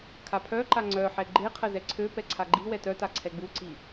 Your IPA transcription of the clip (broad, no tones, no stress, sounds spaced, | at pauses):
kʰ a pʰ œ ǃ a ŋ͡ǀ œ ħ ɛ ɡ͡ǃ e qʰ ə z ɛ ǀʰ ø p ɛ ǀʰ a ɡ͡ǃ i w ɛ t œ t a ǀʰ ɛ ɡ͡b u ǀ i